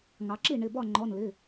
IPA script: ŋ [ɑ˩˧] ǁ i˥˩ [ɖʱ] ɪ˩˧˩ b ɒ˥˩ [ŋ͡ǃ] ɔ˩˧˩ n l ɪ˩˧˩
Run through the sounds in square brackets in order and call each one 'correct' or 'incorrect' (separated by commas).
correct, incorrect, correct